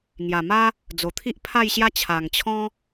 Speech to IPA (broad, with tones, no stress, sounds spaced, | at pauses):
ŋ j a˨˩ m a˦ | d͡z o˨˩ t̪ʰ i˦ ʔ pʰ a˥˧ j ɕ j a˦ t͡ɕʰ a˨˩ ŋ t͡ɕʰ ɔ̃˦